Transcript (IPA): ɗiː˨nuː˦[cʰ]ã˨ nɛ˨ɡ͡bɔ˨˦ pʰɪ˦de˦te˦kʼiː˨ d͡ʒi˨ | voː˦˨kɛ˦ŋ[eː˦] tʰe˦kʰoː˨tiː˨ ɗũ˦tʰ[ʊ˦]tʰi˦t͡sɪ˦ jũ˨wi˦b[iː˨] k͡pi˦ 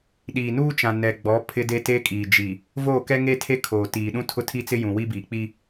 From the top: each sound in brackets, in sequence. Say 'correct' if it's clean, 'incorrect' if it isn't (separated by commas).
incorrect, incorrect, correct, correct